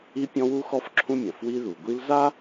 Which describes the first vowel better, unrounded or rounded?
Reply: unrounded